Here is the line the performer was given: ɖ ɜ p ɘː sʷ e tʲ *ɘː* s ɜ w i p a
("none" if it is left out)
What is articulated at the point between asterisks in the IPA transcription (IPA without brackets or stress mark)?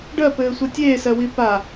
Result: eː